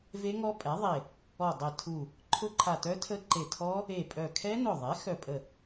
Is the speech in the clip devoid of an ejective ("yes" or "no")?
no